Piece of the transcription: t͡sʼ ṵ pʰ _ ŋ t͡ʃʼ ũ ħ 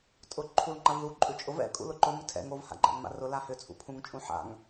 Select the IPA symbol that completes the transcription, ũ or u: ũ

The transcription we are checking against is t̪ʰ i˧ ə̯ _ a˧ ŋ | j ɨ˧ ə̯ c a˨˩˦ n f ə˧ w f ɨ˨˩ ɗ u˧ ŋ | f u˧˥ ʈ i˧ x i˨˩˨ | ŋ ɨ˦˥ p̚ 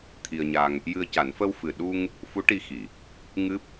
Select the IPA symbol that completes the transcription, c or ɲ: ɲ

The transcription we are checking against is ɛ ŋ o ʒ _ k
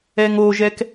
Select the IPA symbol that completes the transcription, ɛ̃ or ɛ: ɛ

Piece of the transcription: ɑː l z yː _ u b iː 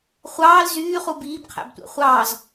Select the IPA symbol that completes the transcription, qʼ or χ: χ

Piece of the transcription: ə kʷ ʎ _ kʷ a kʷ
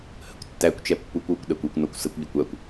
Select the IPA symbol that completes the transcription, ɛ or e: ɛ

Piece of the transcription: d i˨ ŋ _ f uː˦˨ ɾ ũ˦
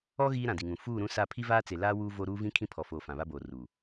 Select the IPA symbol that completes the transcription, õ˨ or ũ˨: ũ˨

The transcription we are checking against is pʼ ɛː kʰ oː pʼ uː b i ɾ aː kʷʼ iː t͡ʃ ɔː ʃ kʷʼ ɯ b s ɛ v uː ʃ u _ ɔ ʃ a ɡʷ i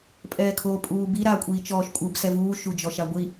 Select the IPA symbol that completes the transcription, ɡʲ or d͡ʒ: d͡ʒ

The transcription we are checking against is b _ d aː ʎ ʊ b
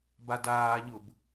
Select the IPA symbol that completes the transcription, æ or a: a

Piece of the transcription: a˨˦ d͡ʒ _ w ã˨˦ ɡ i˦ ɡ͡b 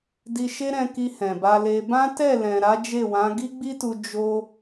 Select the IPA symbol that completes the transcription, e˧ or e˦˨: e˦˨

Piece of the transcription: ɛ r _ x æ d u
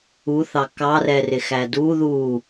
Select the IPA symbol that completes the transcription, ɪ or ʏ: ɪ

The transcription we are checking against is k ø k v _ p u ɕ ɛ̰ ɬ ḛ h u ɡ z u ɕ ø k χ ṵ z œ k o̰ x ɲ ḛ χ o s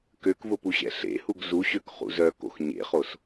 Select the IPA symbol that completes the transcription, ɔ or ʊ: ʊ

